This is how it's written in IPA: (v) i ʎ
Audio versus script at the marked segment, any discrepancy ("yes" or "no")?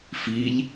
yes